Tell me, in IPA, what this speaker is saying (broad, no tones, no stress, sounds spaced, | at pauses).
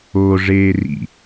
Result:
o ʐ eː r ḭ